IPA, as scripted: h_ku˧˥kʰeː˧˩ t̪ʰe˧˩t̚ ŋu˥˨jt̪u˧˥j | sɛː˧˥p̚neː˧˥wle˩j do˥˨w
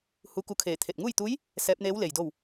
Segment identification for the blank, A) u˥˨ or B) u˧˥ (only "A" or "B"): B